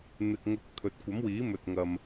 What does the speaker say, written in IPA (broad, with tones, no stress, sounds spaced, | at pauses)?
n̪ ɪ˨ k̚ ŋ ʊ˨˥ k̚ t̪ʰ ɵ˨ t̚ kʷ ɐ˨˥ m w iː˨˥ m ɵ˨ t̚ ŋ ɐ˨ m